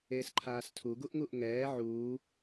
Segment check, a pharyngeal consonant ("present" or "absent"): present